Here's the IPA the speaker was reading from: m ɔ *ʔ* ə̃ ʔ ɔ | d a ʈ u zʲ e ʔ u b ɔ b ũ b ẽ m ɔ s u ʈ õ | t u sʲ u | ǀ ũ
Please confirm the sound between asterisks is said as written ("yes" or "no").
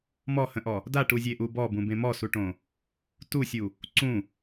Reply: no